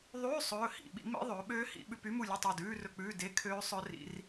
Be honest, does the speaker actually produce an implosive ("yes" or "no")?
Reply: yes